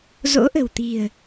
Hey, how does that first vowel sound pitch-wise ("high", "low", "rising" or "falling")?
rising